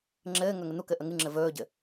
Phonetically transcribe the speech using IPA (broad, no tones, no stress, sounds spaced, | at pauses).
ŋ͡ǁ ɘː ŋ ɵ ŋ ɘ n̪ u k ɘ ʔ ə ŋ ɨ ŋ͡ǁ ɘ v ɵː ɟ ɘ